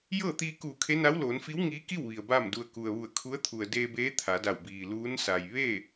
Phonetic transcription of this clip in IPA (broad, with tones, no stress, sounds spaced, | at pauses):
j ɤː˥˨ t̪ iː˧ k uː˧˩ kʰ e˧˥ n a˧˥ w l oː˩˧ n f i˧˥ w ŋ iː˧˥ k i˥˨ w ʋ i˩ ə̯ b aː˥˨ m d u˧ ə̯ k u˩ ə̯ ʋ u˧˩ ə̯ kʰ u˧˥ ə̯ t̪ʰ u˩ ə̯ d eː˧ b eː˧˥ t̪ʰ a˩˧ d a˧˩ w b iː˩ l uː˧˥ n s a˩ j ʋ e˥˨